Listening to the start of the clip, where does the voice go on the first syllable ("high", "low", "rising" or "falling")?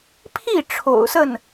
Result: falling